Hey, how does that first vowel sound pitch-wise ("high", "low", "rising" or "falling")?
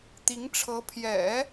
rising